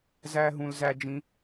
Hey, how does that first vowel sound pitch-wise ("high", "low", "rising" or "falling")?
high